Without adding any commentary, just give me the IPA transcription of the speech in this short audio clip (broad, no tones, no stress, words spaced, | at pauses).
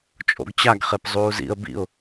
t͡ʃʼo̰ɡt͡ɕaɡ χepzˤuːzḭə̯ bḭʊ̯